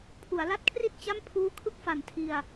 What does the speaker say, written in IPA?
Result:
pʰ u˩˦ a̯ l a˦˥ t̚ kʰ r i˥˩ t̚ t͡ɕ a˥˩ m pʰ uː˦˥ kʰ ɯ˥˩ k̚ f a˨˩ n tʰ i˧ a̯

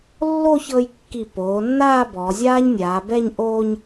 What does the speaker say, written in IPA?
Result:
lː o˥˧ ç ɤ˧ j kː i˧˩ p oː˩˧ nː aː˥˧ b ɔː˩˧ zʲ aː˥ ɲ nʲ aː˩˧ b ɛ˥˧ ɲ ʔ oː˧ ɲ

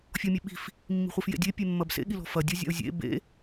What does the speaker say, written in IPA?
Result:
fʲ ɔ mʲ e ɓ i̤ f | mː i̤ χʷ e f j ḛ dʲ e pʲ e mː ɐ b s ḛ ɠ i l ɔ̤ f ɐ dʲ ɔ zʲ a̰ ʊ̯ zʲ ḛ b ḛ

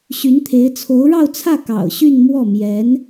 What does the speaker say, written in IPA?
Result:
ɕ y˧˥ n t̪ʰ e˧˥ ɪ̯ t͡sʰ o˧˥ ʊ̯ ɻ ɑ˥˧ ʊ̯ t͡sʰ ä˥˩ k ɑ̰˨˩ ʊ̯ ɕ y˥˧ n m w ɔ˥˩ m j ɛ˧˥ n

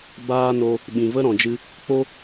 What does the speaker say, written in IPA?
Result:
b aː˦ n o˧ | ɓ ĩ˨ v ə˦ ɾ ɔ̃˨ d͡ʒ ɨ˧ | k͡p o˦

